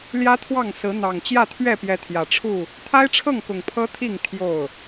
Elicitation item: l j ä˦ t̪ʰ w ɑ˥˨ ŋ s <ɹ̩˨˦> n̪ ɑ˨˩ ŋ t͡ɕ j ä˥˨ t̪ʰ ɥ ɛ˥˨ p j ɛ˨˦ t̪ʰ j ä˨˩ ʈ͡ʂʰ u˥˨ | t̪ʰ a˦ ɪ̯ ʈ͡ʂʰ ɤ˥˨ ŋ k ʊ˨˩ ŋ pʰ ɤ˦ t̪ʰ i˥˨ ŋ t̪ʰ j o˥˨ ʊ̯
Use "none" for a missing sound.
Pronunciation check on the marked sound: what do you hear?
ɹ̩˨˦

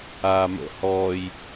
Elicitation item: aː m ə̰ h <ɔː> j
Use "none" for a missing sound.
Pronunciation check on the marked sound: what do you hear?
ɔː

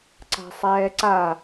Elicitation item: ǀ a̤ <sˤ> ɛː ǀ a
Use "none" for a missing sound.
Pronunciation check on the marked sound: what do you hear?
sˤ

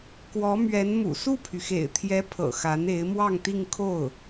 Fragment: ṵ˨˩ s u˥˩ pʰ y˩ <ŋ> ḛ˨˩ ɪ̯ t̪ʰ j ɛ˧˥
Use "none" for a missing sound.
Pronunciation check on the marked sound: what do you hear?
x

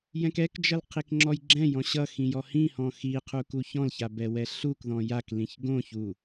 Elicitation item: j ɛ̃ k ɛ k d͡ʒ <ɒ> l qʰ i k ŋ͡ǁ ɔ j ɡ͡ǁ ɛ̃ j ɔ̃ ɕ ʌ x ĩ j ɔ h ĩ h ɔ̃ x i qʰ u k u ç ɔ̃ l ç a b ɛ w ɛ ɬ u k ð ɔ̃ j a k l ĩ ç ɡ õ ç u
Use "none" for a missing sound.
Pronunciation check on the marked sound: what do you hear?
ʌ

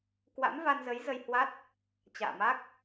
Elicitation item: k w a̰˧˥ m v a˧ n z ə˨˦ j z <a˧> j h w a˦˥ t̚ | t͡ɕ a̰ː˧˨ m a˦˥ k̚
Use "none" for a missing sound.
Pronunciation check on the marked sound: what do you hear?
ə˧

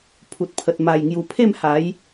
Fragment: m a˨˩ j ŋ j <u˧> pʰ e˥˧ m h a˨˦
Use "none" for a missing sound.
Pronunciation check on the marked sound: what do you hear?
u˨˩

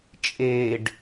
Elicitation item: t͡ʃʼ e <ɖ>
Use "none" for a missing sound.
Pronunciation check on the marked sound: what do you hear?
ɖ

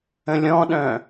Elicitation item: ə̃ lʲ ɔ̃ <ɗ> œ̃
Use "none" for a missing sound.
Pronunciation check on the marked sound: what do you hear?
ɗ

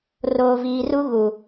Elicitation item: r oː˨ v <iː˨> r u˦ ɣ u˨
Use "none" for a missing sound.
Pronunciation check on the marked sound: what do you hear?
iː˨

